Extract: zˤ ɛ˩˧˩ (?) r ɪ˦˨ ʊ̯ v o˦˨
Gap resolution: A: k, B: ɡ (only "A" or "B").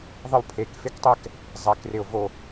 A